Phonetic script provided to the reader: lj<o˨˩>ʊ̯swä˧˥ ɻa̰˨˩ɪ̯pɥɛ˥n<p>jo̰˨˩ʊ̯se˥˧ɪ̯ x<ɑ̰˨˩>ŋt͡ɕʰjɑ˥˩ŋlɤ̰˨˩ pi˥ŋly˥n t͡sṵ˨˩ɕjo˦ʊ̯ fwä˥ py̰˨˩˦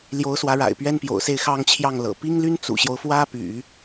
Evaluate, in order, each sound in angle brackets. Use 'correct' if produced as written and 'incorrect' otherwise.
incorrect, correct, incorrect

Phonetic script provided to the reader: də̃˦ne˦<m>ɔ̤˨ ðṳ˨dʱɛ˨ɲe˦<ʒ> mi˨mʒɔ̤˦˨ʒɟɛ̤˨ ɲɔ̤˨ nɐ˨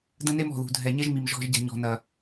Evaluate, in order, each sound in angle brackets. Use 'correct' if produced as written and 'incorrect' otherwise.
correct, correct

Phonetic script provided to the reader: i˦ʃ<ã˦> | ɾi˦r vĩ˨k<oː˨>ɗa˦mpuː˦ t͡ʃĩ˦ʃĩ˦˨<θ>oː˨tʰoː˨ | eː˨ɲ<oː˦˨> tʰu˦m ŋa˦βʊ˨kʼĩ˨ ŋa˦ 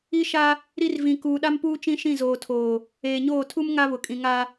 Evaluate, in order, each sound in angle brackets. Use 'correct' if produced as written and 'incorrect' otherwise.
incorrect, incorrect, incorrect, correct

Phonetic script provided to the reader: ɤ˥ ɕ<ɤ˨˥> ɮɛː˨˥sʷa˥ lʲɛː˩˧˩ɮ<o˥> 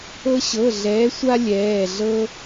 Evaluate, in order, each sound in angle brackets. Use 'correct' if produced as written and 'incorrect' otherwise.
incorrect, incorrect

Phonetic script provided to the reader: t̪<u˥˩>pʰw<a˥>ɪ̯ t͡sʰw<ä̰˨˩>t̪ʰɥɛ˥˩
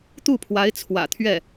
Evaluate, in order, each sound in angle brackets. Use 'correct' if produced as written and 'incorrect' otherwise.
correct, incorrect, correct

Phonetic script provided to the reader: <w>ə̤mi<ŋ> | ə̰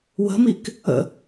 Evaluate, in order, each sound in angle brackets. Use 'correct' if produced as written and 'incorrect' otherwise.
correct, incorrect

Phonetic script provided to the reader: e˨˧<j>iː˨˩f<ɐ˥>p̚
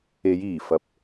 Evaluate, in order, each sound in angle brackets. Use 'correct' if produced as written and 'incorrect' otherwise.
correct, incorrect

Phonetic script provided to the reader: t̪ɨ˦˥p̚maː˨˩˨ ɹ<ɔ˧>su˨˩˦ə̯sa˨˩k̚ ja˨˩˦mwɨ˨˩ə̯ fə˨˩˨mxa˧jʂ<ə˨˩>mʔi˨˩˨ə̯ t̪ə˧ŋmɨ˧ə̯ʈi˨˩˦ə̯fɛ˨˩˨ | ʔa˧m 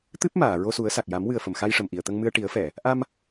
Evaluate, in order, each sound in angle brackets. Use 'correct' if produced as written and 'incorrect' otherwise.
incorrect, correct

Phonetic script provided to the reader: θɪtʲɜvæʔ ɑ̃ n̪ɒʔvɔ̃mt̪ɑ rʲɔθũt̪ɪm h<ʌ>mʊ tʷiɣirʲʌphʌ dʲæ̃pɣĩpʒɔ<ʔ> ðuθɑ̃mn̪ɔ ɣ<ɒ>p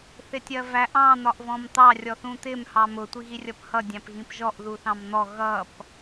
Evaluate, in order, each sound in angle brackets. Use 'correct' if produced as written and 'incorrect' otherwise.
incorrect, correct, incorrect

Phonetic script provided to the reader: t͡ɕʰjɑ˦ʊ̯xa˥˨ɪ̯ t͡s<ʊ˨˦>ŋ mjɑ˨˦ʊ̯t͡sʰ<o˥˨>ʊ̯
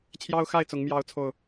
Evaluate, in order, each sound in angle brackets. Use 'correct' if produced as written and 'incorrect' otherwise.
correct, incorrect

